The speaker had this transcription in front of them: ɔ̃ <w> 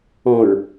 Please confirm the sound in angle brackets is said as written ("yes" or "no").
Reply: no